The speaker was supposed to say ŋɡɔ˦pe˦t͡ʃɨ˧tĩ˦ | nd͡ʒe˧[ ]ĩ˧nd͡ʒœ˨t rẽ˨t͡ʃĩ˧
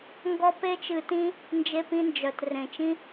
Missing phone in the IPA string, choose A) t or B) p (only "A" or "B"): B